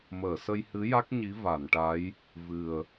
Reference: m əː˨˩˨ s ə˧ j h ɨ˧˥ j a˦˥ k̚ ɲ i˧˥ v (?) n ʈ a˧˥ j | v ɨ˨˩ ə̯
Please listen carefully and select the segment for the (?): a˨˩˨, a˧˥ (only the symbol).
a˨˩˨